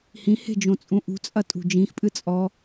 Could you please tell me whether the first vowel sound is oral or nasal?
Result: nasal